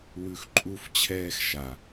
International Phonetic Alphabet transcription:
w ʉ˧ x ǃʼ u˧ f t͡ɕʰ ɛː˧ x ʃ a˨

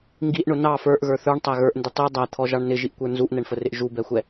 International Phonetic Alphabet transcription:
ŋ ɡ i ʔ ɳ ʊ n ɑ f ə˞ ʔ ɣ ə˞ θ ə˞ ɳ tˤ æ ɣ ə˞ ʔ n d ɪ tˤ i dˤ æ t̪ʰ ɔ ʒ ɑ ɳ n ɪ ʒ i ʔ kʷ ə˞ n z u ʔ n ɛ ɳ f ə r ɪ ʔ ʒ u b ɛ xʷ ɛ

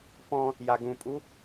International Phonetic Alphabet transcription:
p ɔ̃ | j a ɡ ũ pʼ u

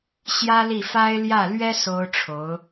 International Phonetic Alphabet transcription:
ɕ j ä˥ l i˥˩ f a˥ ɪ̯ l j ä˥˩ l ɥ ɛ˥ s o˥ ʊ̯ ʈ͡ʂʰ o˧˥ ʊ̯

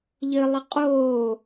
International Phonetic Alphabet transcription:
ʎ ɘ lˠ ɘ qʼ oː

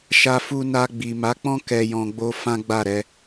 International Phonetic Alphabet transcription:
ʃ a˧ f u˧ n a˧ ɡ͡b i˨ m a˨˦ k͡p ɔ̃˦ k ɛ˧ j ɔ̃˧ ɡ͡b o˦ f ã˦ ɡ͡b a˦˨ ɾ ɛ˧

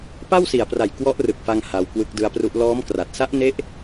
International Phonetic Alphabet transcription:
p a˥˩ w s i˨˩ a̯ p r a˨˩ j k w ɔ˦˥ ʔ r ɯ˨˩ k̚ f a˧ ŋ h a˧ w k w ɯ˦˥ k̚ d ɯ˦˥ a̯ p r u˦˥ ʔ l ɔː˦˥ m k r a˨˩ t̚ s a˦˥ ʔ n e˦˥ ʔ

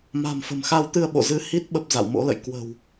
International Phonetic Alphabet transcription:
m a̤˨˩ m f ə̤˨˩ m x a˧ w t̪ ɨ˧ ə̯ ɓ o̰˧˨ z ɨ˨˦ h i˦˥ t̚ ɓ ə˦˥ p̚ z a̰˧˨ w m o̰˧˥ l ə̰˧˨ j k w ə̤˨˩ w

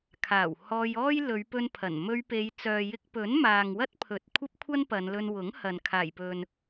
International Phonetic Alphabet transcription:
kʰ aː˨˩ w h ɔː˧ j ɔː˥ j l ɵ˨˧ ɥ p ɵ˧ n pʰ ɐ˨˩ n m ɵ˧ ɥ p e˨˧ j t͡s œː˨ j ɪ˧ k̚ p ɵ˨˥ n m aː˨ ŋ w ɐ˥ t̚ pʰ ɵ˨ t̚ kʷʰ ɐ˥ p̚ kʷʰ ɐ˥ n p ɐ˨˧ n l ɵ˧ n w ʊ˨˥ ŋ h ɐ˨ n kʰ aː˨˩ j p ɵ˨ n

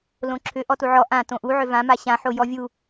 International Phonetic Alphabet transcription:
l õ ǁʰ ʏ ʔ ɔ t u ʕ ɔ ʔ ã t õ ʔ u ʕ ʏ v ã m a ɕ ã ħ o j ɔ vʲ u

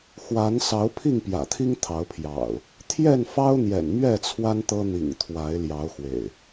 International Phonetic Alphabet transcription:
x w a˨˦ n s ɑ˨˦ ʊ̯ pʰ i˥˨ ŋ p j ä̰˨˩ t̪ʰ i˦ ŋ t̪ʰ ɑ˨˦ ʊ̯ pʰ j ɑ̰˨˩ ʊ̯ | t̪ʰ j ɛ˥˨ n f ɑ˦ ʊ̯ n̪ j ɛ̰˨˩ n m ɥ ɛ˥˨ t͡sʰ w a˦ n t̪ ɤ˦ n̪ ḭ˨˩ ŋ t̪ʰ w a˨˦ ɪ̯ l j ɑ˨˦ ʊ̯ x w ḛ˨˩ ɪ̯

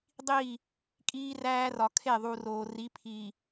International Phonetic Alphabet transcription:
dˤ iː˦˨ | kʼ iː˦ r æː˦ r ɒ˨ kʰ e˦˨ ðˤ u˨ r oː˨ r i˨˦ pʰ iː˨

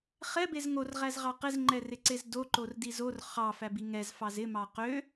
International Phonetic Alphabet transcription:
χ ɛ b e z ŋ o r ʁ æ z ʁ ɑ q ɪ z ŋ͡ǃ ɛ r ɪ ǀ e z d o ǃ o r d i z o r χ ɑ f æ b i ŋ ɛ z f ɑ z ɪ m ɑ q ø

